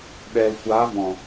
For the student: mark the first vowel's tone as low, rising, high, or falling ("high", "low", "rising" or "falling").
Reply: low